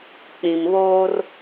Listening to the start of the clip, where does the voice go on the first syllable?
low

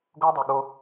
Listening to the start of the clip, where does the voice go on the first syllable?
high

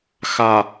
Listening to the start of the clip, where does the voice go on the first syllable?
low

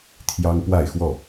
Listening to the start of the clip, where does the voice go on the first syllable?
high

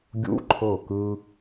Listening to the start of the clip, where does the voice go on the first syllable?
high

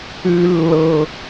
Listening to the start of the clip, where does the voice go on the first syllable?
high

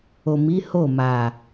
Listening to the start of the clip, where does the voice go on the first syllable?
low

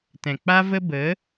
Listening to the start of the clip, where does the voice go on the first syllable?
low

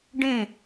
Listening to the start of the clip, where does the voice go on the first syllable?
falling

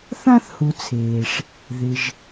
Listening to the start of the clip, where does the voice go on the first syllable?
high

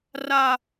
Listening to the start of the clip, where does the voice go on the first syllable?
high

